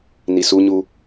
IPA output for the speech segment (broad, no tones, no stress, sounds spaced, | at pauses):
n i s u ɲ u